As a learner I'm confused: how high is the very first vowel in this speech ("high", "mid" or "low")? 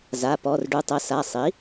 low